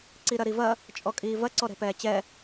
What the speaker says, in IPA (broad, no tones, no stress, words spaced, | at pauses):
ǀiɾɐɾivɐ | t͡ʃʼɔkʼiːvɐ ǀɔɾɛ̤pɛːt͡ɕɛ